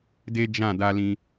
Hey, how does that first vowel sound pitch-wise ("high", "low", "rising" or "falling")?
high